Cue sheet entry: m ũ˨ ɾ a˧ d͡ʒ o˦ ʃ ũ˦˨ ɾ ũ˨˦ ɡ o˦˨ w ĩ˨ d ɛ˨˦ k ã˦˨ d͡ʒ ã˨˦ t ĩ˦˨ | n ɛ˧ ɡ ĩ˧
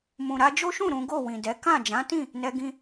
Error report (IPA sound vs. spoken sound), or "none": none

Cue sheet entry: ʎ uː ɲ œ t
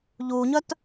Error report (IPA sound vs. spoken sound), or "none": none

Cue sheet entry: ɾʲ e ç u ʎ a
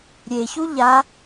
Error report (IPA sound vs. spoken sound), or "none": none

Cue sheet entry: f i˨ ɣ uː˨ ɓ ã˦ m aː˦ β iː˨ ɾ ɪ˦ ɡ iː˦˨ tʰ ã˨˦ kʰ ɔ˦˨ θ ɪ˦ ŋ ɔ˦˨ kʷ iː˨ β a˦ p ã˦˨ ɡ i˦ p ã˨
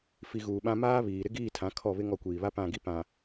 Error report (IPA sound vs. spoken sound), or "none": θ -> β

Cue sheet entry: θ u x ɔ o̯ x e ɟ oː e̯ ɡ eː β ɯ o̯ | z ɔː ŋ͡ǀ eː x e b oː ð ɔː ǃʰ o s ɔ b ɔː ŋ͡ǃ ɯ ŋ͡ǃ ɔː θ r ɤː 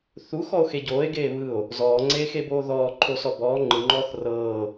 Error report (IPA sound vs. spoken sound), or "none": none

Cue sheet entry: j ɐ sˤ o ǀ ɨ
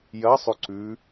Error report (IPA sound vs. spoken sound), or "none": ɨ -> ʉ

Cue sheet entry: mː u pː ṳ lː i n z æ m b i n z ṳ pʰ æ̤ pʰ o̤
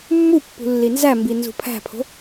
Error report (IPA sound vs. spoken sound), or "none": none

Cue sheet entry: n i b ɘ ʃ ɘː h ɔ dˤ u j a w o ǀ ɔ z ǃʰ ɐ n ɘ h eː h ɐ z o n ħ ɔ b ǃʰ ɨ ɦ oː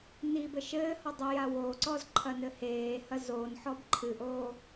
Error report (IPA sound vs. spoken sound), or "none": ɦ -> ʔ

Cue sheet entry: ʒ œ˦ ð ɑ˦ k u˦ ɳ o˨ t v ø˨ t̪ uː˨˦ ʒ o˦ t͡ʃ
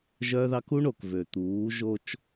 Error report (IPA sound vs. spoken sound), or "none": t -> k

